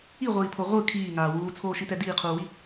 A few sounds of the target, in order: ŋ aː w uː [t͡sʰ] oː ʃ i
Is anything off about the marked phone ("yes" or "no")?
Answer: no